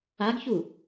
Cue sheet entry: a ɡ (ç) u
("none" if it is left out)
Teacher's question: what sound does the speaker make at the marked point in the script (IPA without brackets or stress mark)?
ç